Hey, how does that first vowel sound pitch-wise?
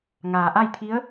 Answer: low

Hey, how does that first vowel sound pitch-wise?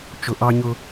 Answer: low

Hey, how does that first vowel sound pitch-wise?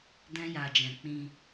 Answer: high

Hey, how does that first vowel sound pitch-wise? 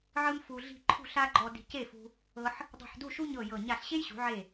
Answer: high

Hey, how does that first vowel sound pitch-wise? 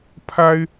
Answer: high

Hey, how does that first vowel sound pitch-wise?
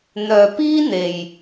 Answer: low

